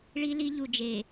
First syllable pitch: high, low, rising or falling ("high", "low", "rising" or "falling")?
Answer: high